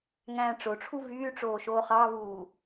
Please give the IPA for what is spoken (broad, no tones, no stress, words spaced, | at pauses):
ŋæ̃ːʈ͡ʂoʈ͡ʂʰu vyːʈ͡ʂoːʃoː χɑvuː